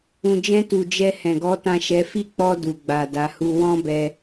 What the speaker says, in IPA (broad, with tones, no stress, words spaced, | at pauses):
ũ˨d͡ʒɛ̃˧tu˨ d͡ʒɛ˧hɛ̃˨ɡɔ˨˦ tã˦˨ʃɛ˨˦ fi˦˨k͡pɔ˧ du˨ɡ͡ba˨ da˨˦hu˦ wɔ̃˦bɛ˧